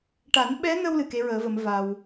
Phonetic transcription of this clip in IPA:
ʈ a˨˩˦ n ɓ ɛ˧˥ n ə˧ w l ɨ˨˩ k e˧˥ ɹ əː˨˩˦ v ə˨˩˦ m v a˧ w

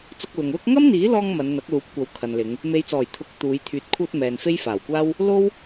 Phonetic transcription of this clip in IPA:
t͡s ɐ˧ k̚ l ʊ˨ ŋ l ʊ˥ k̚ ŋ ɐ˥ m n̪ iː˨˥ l ɔː˧ ŋ m ɐ˨˧ n n̪ ɐ˨˥ k̚ l uː˨˥ p̚ kʷ ɐ˨˥ w kʰ ɐ˨ n l ɪ˨˧ ŋ | m e˨˧ j t͡s ɔː˨˩ j t̪ʰ ʊ˨˥ k̚ t̪ uː˨˧ j t̪ʰ yː˨˥ t̚ kʰ uː˧ t̚ m ɛː˨ n f e˥ j f aː˨˩ w kʷ aː˥ w | l o˥ w

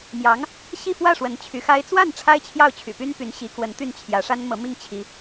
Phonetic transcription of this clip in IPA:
m j ɑ˧˥ ŋ | ɕ i˥˧ f w ä˥˩ ʂ w ə˧˥ n t͡ɕʰ y˧˥ x a˥ ɪ̯ t͡s w a˥˩ n ʈ͡ʂʰ a˥ ɪ̯ t͡ɕʰ j ɑ˥˩ ʊ̯ t͡ɕʰ y̰˨˩ p y˥ n p y˧˥ n ɕ i˧˥ k w ə˧˥ n t̪ y˥˩ n t͡ɕʰ j ä˧˥ ʂ a˥ n m ɤ˧˥ m i˥˩ ŋ t͡ɕʰ i˧˥

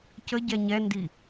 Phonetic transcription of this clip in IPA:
c ə ɟ ɛ ɲ ɛ n d i

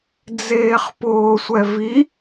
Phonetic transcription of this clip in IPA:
d͡z eː χ p ʊː sʷ ɛ v i

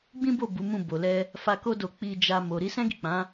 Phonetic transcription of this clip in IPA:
ɡ͡b ĩ˦ b o˦˨ b u˨˦ m ũ˦˨ b o˨ l ɛ˧ | f a˧ k o˦ d o˧ k͡p i˧ d͡ʒ a˧ m o˨ ɾ i˨˦ s ɛ̃˦ ɡ i˦˨ k͡p ã˨˦

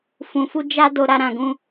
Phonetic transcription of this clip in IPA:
f ũ˧ f u˦ d͡ʒ a˦ d o˧ ɾ a˦ ɾ ã˧ ɡ ũ˦

